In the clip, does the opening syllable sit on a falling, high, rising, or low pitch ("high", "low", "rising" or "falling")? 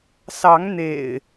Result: rising